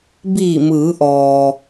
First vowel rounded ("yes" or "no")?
no